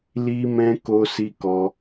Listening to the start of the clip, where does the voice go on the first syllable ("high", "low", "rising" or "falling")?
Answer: high